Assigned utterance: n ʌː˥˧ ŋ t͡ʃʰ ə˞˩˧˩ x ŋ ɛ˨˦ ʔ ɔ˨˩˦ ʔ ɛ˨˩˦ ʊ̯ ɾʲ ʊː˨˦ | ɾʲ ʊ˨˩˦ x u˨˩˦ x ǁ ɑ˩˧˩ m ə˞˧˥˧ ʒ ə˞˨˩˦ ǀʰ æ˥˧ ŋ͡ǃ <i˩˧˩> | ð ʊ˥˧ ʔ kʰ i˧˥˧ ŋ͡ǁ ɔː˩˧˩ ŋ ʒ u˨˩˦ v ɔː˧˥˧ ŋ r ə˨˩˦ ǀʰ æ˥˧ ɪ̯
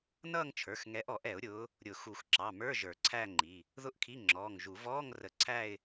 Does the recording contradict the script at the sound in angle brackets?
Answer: no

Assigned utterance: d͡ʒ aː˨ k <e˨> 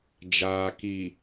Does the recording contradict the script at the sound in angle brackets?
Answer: yes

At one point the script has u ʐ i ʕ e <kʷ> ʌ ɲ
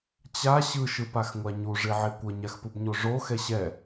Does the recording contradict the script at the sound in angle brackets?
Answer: no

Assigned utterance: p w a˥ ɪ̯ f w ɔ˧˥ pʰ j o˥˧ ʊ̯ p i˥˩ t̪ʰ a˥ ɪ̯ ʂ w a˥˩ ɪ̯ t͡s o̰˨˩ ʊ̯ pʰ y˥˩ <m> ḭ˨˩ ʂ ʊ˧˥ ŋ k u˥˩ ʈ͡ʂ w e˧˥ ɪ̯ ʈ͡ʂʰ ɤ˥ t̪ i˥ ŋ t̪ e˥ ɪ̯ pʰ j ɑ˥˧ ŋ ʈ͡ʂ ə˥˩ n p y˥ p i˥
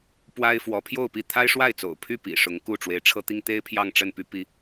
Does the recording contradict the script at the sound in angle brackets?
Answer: yes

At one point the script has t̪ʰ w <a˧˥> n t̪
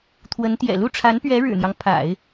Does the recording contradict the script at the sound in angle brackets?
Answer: yes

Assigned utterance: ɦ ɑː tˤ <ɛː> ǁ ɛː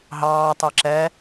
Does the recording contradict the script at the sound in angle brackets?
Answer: yes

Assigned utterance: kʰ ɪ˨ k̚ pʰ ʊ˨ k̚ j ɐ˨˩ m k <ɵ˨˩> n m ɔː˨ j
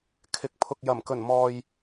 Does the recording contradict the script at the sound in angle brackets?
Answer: no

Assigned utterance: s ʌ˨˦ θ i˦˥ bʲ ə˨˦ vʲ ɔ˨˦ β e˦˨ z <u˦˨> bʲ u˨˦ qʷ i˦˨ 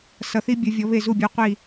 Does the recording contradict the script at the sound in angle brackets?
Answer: no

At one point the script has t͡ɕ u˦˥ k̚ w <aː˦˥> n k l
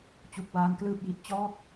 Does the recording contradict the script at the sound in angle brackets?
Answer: no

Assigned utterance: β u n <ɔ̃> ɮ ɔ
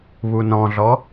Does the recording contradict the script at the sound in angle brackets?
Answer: no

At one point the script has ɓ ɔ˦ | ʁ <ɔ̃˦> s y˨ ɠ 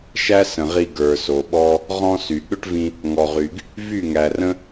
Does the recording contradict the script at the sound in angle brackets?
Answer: no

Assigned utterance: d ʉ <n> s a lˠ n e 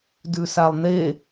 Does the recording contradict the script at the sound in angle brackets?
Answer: yes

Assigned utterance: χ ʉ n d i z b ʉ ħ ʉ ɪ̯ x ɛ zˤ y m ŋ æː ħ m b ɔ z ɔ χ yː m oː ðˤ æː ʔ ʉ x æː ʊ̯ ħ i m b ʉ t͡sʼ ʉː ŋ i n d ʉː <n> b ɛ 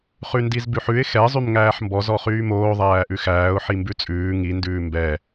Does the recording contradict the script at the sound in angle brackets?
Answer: yes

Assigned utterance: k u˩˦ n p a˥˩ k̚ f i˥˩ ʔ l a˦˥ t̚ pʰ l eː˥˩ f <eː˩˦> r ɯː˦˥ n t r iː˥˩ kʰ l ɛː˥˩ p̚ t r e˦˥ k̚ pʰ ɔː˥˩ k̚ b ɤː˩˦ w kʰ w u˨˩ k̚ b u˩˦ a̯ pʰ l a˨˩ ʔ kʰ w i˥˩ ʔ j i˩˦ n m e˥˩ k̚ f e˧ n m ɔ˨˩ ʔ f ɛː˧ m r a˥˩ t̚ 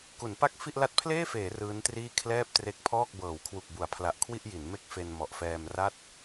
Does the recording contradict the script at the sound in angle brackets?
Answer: no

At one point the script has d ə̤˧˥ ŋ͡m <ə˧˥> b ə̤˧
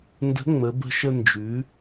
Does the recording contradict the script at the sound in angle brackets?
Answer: yes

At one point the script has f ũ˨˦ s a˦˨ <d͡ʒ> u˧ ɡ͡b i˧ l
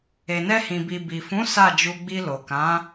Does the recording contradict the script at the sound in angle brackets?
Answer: no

